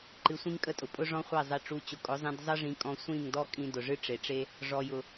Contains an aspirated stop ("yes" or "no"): no